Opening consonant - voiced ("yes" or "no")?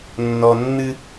yes